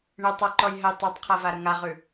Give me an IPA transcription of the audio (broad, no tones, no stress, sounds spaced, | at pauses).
ɳ ɪ tˤ ɤ ǃ ɔ j ɦ ə j tˤ ʉ tˤ qʰ a v a ɾ ə ŋ a ʁ ʉ